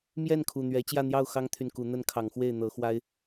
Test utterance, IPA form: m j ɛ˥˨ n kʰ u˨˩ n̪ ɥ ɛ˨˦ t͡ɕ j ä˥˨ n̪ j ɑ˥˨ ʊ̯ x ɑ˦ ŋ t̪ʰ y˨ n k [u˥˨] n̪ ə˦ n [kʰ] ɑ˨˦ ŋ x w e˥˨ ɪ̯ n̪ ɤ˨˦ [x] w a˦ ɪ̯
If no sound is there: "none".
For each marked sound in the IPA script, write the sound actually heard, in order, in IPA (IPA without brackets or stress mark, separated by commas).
u˨˦, kʰ, x